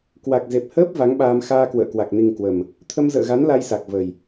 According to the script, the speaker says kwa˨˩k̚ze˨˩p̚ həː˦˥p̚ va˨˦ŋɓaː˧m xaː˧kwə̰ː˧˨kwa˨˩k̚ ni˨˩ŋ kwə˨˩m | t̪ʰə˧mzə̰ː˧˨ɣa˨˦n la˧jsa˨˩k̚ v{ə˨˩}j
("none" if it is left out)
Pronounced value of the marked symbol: ə˨˩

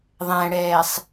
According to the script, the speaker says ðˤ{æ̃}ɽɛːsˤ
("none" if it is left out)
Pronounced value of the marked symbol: æ̃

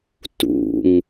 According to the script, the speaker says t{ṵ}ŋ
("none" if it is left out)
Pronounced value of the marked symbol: ṵ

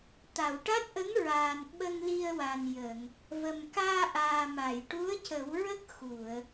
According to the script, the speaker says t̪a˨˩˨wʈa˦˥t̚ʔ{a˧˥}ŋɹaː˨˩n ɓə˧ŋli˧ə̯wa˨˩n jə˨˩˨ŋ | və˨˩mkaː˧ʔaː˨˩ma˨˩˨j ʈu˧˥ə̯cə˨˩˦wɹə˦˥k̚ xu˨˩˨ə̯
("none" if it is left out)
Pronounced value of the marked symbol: ə˧˥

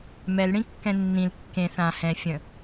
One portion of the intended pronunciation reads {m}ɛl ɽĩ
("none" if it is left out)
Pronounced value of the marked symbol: m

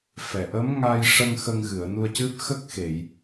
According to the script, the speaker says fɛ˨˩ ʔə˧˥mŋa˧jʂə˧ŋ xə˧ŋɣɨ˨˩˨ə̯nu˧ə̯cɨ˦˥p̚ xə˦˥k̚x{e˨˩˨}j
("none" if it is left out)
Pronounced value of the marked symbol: e˨˩˨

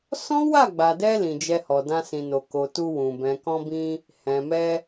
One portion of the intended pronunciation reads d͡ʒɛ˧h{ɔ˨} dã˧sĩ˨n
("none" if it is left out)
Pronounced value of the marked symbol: ɔ˨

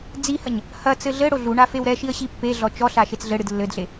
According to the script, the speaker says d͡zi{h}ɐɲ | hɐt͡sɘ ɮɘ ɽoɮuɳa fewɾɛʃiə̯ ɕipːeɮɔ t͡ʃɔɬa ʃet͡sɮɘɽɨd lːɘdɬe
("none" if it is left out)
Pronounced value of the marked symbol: h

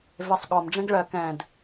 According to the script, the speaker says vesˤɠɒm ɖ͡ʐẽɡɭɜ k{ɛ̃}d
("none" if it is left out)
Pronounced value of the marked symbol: ɛ̃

